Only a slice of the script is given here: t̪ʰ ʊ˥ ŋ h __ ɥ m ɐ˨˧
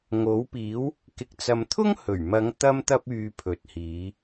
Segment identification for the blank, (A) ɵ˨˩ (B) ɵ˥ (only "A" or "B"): A